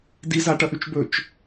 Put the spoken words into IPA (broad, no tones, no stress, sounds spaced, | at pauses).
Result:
d i z a ʈ ɐ ʔ ʉ t͡ʃ b ɵ t͡ʃ